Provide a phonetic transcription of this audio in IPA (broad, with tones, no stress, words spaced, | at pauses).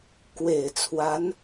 kwe˨˩ɪ̯ t͡sʰwa˧˥n